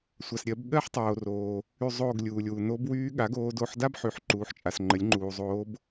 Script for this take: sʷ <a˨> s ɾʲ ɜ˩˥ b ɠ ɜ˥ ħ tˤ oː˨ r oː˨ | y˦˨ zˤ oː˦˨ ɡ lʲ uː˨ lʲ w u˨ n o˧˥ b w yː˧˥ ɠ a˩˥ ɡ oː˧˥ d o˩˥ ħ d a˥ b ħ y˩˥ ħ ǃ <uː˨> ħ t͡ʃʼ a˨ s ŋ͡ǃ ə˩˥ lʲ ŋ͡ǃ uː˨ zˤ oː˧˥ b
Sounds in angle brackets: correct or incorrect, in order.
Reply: correct, correct

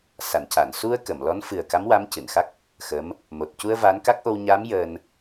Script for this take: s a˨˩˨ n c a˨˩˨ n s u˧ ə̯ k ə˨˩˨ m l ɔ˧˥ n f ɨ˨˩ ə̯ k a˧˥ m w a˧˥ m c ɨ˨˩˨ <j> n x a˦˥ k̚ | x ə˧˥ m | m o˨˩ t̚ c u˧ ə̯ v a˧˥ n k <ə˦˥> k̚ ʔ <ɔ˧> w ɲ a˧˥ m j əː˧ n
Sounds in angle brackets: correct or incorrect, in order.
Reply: incorrect: none, incorrect: a˦˥, incorrect: o˧

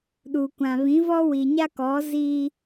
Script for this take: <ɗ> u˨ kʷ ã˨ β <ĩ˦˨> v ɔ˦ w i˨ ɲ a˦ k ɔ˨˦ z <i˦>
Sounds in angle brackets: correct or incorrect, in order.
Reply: correct, incorrect: ĩ˨˦, correct

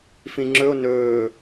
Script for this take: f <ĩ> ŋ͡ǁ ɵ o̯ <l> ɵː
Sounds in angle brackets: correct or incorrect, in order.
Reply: correct, incorrect: n

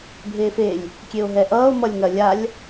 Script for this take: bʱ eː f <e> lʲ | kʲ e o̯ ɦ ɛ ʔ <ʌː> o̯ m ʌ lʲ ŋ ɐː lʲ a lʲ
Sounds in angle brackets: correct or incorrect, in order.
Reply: correct, correct

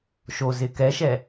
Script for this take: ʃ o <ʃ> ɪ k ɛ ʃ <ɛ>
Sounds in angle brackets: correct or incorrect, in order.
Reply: incorrect: z, correct

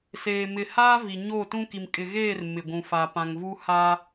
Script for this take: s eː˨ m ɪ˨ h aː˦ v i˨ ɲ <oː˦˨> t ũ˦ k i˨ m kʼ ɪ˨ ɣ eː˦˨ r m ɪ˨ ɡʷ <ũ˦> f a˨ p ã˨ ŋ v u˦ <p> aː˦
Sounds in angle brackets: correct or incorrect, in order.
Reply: correct, incorrect: ũ˨, incorrect: h

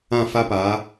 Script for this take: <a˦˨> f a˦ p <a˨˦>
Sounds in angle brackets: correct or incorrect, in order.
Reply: incorrect: ã˦˨, correct

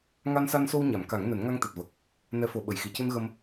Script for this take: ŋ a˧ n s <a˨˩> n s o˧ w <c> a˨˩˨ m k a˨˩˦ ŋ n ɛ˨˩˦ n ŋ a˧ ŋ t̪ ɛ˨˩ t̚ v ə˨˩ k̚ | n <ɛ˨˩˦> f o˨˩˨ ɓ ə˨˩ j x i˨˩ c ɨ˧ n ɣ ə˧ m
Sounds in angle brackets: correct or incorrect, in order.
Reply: incorrect: a˧, incorrect: ɲ, correct

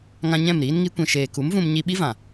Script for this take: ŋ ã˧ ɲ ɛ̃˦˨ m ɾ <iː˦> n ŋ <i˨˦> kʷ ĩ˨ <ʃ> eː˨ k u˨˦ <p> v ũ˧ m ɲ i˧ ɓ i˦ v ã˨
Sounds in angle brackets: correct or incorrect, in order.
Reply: correct, incorrect: i˧, correct, incorrect: m

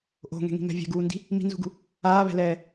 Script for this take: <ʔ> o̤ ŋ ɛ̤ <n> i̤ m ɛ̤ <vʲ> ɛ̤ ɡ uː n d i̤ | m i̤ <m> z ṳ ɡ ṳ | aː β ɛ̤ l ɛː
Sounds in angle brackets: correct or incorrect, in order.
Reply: correct, incorrect: ŋ, correct, incorrect: n

